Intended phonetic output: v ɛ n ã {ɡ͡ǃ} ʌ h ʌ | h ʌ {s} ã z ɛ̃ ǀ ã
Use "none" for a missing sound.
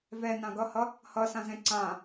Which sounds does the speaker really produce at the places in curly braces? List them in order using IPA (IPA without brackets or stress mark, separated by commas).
ɡ, s